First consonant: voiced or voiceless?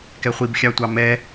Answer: voiceless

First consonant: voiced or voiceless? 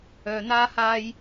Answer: voiced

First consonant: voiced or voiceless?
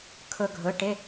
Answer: voiceless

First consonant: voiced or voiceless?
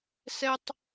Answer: voiceless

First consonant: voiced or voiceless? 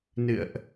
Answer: voiced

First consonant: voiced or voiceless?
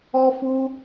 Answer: voiceless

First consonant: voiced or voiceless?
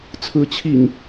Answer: voiceless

